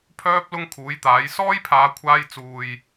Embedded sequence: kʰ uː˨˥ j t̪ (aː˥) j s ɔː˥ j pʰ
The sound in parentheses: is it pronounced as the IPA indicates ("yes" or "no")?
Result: no